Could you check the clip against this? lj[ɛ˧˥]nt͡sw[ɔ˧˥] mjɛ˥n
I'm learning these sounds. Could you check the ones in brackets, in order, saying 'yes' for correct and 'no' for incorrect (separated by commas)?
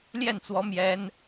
no, yes